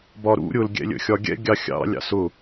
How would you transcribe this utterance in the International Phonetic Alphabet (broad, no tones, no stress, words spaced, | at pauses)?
bɒɾṵ ɾʲʊl ɡʲɛ̰lʲə̰xʲɒɡʲɛ̰ ɡʲɑxʲɑ̰ lʲɑ̰sʊ